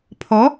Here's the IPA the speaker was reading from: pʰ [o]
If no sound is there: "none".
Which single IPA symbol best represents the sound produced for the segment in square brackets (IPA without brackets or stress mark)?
ɔ